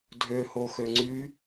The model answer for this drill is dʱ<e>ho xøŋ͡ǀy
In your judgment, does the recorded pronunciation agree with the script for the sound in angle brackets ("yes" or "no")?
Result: no